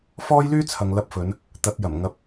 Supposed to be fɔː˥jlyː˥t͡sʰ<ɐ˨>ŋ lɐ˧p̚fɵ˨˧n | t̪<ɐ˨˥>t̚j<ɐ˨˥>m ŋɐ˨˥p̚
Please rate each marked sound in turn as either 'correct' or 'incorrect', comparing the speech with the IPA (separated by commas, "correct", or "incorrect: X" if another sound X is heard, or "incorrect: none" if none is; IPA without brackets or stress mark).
correct, correct, incorrect: ɐ˨˩